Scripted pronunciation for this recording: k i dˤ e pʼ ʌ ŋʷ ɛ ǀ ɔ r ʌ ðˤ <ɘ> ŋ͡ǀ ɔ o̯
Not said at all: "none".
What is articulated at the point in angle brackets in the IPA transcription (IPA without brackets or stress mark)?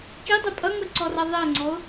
ɘ